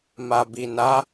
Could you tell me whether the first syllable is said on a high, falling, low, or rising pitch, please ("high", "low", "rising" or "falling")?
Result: low